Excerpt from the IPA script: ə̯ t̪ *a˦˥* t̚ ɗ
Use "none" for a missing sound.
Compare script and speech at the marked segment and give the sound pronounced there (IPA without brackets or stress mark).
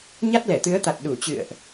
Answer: a˨˩